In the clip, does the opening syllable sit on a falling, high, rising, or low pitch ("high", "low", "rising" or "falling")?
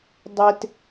high